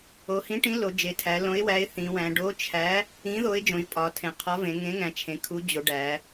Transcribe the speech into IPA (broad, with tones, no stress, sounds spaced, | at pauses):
o˩˧ h ĩ˨˥ ʈ ĩ˨˥ l o˩˧ d͡ʒ e˩˧ tʰ æ˩˧ l õ˨˥ ɪ̯ w æ˨˥ ɪ̯ θ ĩ˩˧ w æ̃˩˧ ɖ o˨˥ t͡ʃʰ æ˨˥ | ĩ˨˥ ð o˨˥ ɪ̯ d͡ʒ õ˩˧ ʒ pʼ ɒ˩˧ tʰ ẽ˩˧ qʰ ɒ˨˥ v ẽ˩˧ ŋ ẽ˨˥ ŋ æ̃˩˧ t͡ʃʰ ẽ˩˧ kʰ u˨˥ d͡ʑ o˩˧ ɖ æ˩˧